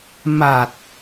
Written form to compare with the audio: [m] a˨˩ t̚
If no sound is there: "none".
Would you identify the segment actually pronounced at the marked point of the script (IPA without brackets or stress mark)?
m